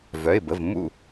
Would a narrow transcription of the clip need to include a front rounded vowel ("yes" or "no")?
yes